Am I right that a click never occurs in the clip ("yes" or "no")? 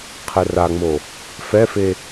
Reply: yes